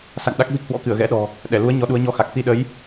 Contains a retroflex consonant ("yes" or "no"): no